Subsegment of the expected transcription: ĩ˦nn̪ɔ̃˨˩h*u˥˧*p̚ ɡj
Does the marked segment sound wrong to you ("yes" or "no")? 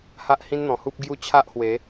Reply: yes